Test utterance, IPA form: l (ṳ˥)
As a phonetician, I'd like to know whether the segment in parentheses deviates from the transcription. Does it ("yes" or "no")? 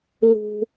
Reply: no